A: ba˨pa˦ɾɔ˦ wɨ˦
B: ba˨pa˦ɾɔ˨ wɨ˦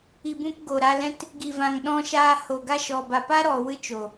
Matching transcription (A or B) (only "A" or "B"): B